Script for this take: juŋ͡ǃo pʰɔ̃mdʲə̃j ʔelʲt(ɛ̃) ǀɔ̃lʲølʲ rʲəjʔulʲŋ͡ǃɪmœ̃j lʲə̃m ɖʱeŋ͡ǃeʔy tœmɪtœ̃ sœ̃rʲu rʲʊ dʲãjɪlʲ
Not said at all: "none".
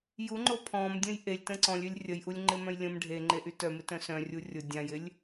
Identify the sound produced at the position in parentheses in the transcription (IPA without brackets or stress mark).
ə̃